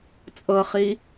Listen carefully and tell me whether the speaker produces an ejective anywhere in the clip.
yes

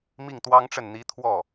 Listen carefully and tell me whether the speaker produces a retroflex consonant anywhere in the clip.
yes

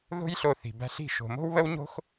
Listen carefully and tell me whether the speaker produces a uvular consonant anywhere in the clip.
no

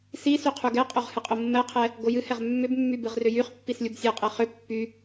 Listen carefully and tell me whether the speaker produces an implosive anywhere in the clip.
no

